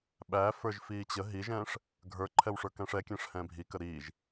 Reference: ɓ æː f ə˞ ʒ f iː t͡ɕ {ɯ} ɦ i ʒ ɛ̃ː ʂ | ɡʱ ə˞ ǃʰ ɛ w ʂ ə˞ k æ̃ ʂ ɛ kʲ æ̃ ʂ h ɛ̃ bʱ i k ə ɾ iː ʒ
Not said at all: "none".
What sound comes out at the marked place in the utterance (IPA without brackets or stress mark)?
ə